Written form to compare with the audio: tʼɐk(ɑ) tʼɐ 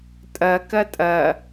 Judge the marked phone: incorrect: ɐ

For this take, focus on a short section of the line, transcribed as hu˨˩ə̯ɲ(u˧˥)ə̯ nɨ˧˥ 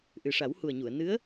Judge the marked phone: incorrect: u˨˩˨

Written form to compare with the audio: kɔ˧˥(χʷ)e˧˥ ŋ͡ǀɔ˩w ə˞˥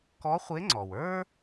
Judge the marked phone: correct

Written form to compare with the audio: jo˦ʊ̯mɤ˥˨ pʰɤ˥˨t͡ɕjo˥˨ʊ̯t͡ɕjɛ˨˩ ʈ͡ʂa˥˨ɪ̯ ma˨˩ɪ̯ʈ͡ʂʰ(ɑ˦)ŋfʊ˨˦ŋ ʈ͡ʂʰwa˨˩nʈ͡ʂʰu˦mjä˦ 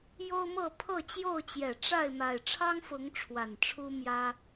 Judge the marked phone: correct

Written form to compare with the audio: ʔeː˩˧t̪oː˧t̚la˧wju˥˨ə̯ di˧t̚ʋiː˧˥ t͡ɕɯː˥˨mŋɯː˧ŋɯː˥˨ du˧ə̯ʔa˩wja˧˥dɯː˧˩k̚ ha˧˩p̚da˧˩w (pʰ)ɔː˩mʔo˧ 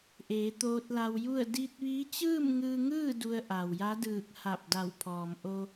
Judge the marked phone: correct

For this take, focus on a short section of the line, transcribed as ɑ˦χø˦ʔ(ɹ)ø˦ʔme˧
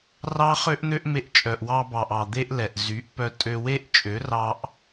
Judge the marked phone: incorrect: n̪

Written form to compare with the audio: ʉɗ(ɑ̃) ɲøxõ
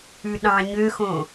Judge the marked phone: correct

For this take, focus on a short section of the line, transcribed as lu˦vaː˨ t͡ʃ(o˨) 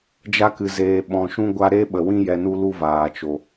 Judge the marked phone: correct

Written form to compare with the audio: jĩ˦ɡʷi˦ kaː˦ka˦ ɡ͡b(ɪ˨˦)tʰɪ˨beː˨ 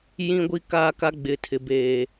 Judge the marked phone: correct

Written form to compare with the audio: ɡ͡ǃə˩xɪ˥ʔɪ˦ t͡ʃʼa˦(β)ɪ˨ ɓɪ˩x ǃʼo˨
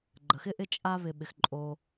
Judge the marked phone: correct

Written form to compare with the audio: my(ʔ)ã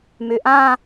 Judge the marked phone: correct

